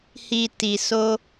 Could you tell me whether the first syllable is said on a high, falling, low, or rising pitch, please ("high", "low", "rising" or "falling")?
low